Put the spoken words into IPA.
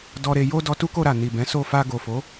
d ɔ˧ ɾ e˧ j o˦ d ɔ˧ t u˦ k o˧ ɾ a˨ n i˨ b ɛ̃˨˦ s o˦˨ f a˧ ɡ o˨ f o˨˦

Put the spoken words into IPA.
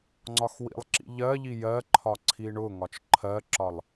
ŋ͡ǀ ɒ x w ḭ lˠ ǁ ḭ ʎ ɜ ʎ i j ɜ ǃʰ ɒ ǀʰ i ɳ ʊ ŋ ɒ t͡ʃ ǃʰ ɜ ǁ ɒ lˠ

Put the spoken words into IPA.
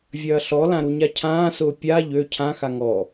vʲ ɐː ɬ ɔ l ã ɾ u ɲ a cʰ ãː s ʊː pʲ a ʎ ø cʰ ã x a ŋ ɔ

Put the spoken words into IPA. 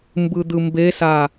m b ɯ d̪ ɯ m b e s a

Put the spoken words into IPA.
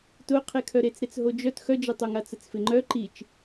t ʊ qʰ e kʰ œ ɾ e t͡s ɾ e t͡s ɦ o d͡ʒ œ t x œ d͡ʒ e tˤ o ŋ a t͡s ə t͡s f ɪ ŋ͡ǃ œ ǃ i t͡ʃ

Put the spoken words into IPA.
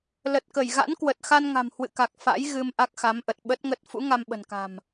l ə˨˩ t̚ k ə˧˩ j ɣ a̰˧˥ n k w ə˨˩ t̚ x a˧ n ŋ a̤˨˩ m h w ɨ̰˧˨ k a˨˩ k̚ f a̰˧˥ j ɣ ɨ˧ m ʔ a˦˥ k̚ x a˨˦ m ʔ ə˨˩ t̚ ɓ ə˦˥ t̚ ŋ ə˦˥ t̚ f ṵ˧˥ ŋ a˧ m ɓ ə̤˨˩ n k a̤˨˩ m

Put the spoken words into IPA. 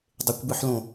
dˤ e kʷ b ɯ ħ l õ

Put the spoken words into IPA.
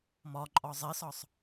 m ɒ ǃʼ ɒ zˤ e s ɒ sˤ

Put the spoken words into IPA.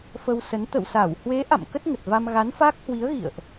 f ə˧ w s ə˨˦ n t̪ ə̰˧˨ w s a˧˩ w h w e˨˦ ʔ a̰˧˨ m k ə˦˥ t̚ ŋ ə˨˩ t̚ v a˧ m ɣ a˨˦ n f a˦˥ k̚ h w i˨˦ ə̯ ɣ ḭ˧˨ ə̯ ʔ

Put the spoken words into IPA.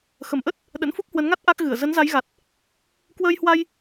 x ə˧˩ m ʔ ə˦˥ t̚ | ɗ ə̰˧˥ n f u˦˥ k̚ h w ə˨˦ n ŋ a˦˥ t̚ ʔ a˦˥ k̚ ɣ ɨ˧˩ ə̯ z ə˨˦ n z a˨˦ j ɣ a˨˩ t̚ | k w əː˧ j h w a˧ j

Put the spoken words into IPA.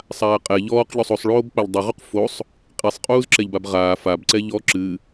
sˤ aː qʼ ɛ ʎ ɔː q ʎ o sˤ o sˤ ɭ oː b k͡p a ʎ dˤ u ʁ u q f o sˤ | qʼ i sˤ qʼ uː z ǁ ɛ ʎ b a b ʁ aː f a b ǀ ɛ ʎ ɔ ǁ ɨ

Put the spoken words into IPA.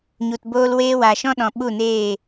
ɲ u˨ t b oː˧ l w eː˦ w aː˨ ʃ ɔ̃˦ ɗ ɔ̃˨ ɓ u˦˨ n eː˦˨

